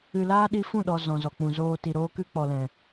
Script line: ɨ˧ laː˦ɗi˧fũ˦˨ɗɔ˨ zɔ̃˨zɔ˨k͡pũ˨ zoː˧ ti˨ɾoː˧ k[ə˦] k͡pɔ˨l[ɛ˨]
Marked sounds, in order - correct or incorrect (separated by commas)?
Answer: incorrect, incorrect